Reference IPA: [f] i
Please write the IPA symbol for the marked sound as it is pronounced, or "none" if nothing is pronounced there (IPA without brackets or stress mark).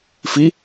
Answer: f